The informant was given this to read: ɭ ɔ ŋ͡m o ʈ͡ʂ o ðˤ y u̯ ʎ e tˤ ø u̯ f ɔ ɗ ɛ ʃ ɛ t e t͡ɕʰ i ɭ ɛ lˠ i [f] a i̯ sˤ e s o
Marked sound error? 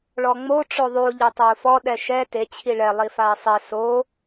no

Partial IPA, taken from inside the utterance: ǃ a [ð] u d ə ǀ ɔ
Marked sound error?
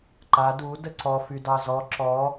yes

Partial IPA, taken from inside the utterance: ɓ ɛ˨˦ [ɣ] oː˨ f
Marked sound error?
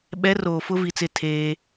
yes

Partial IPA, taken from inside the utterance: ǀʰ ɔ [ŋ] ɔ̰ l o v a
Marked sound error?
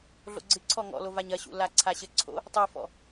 no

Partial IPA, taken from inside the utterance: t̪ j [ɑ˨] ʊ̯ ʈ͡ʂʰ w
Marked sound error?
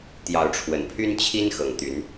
yes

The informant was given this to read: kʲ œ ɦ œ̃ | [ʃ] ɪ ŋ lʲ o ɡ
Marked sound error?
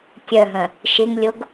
no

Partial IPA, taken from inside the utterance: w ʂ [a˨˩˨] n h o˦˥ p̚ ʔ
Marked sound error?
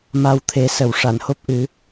no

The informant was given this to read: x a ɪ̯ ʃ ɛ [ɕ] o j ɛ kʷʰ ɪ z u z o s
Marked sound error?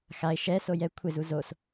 yes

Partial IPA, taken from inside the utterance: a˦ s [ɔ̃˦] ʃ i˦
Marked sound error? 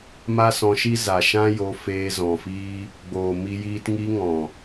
yes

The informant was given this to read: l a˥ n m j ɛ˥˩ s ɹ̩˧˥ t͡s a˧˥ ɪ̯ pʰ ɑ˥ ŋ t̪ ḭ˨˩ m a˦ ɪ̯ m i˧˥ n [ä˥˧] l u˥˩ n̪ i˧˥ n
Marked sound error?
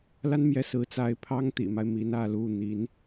no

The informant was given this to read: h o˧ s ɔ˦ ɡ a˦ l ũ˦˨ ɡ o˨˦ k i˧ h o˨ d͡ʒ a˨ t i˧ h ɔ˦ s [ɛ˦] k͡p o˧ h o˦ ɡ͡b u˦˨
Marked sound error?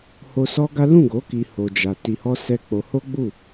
no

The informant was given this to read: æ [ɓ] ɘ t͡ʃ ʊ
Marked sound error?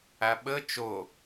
no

